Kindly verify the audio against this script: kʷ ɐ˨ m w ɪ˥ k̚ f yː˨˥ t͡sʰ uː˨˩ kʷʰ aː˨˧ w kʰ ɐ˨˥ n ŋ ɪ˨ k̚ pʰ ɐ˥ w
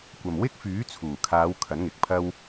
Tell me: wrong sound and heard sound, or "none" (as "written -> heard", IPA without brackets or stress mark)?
kʷʰ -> kʰ